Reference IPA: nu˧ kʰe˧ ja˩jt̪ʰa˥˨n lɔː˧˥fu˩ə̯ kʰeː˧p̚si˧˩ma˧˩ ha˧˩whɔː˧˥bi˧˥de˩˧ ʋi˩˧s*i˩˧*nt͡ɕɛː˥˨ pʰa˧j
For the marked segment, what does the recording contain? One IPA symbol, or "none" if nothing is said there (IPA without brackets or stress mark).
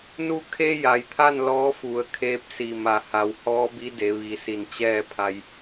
i˧˩